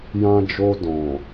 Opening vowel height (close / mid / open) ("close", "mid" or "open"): open